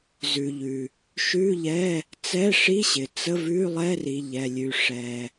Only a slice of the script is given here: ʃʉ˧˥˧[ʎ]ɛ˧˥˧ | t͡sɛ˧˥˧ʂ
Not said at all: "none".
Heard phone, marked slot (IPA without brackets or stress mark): ʎ